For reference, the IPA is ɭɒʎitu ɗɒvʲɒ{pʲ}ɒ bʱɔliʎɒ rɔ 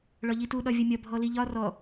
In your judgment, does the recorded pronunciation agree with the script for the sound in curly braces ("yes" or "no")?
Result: no